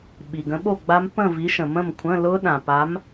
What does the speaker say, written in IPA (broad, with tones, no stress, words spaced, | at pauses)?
ɓi˩ɡə̃˨˥ɓo˥˨ɡ͡ba˦˥m pə̃˥˨vi˨˥ʃə̃˩ mə̃˥˨mkʷʰə̃˧˥˧ lʊ˦˥ɗã˩ pa˨˥m